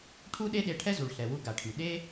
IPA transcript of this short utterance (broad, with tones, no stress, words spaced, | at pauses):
ʈʰu˥ɗe˥ɗe˧ ʈʰɛ˥zu˩ɭɬɛ˩wu˧ ɡa˩ʈʰy˩ ɗe˥